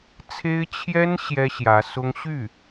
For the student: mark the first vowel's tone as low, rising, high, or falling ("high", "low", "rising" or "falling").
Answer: high